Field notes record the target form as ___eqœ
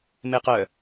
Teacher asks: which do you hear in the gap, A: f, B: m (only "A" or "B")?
B